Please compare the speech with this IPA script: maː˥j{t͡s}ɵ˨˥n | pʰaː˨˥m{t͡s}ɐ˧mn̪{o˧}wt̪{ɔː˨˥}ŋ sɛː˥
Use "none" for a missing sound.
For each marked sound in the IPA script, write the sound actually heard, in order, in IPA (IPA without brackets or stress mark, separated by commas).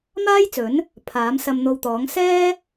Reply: t͡s, s, o˧, ɔː˨˥